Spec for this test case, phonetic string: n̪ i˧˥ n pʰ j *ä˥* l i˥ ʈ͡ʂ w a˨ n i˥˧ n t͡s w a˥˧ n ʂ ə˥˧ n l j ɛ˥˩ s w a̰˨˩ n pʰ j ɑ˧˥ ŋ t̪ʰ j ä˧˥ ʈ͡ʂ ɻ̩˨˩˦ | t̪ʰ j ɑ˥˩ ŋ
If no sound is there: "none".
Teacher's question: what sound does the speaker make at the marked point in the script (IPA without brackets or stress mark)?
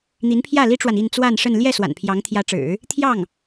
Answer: ä˥˩